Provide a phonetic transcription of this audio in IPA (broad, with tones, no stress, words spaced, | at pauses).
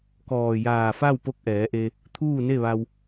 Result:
kɔː˧˩ jaː˧˩fa˥˨w po˧˥k̚ʔɛː˩˧ʔe˧ | t̪ʰuː˥˨ne˥˨ʋa˧w